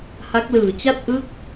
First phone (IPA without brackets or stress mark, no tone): h